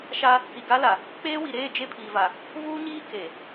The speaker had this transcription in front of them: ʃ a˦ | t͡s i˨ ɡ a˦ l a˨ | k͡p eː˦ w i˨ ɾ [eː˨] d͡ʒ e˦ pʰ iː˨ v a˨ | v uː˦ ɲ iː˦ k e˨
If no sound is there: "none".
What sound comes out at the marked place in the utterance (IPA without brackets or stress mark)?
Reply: eː˦˨